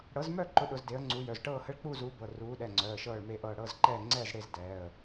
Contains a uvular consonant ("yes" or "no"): no